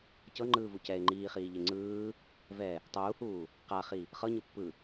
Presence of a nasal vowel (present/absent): absent